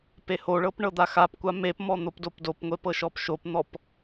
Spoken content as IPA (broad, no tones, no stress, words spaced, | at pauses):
pehoɭɤp ɳɤd̪axapkʷa mepmɔ n̪opdopdopŋʷe pɤʃɔpʃopn̪ɔp